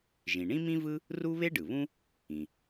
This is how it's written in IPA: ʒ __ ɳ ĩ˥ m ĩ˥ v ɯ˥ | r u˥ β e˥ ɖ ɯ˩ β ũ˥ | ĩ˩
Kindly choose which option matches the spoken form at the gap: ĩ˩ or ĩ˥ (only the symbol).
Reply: ĩ˩